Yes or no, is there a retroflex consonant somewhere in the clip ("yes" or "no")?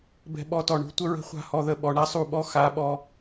yes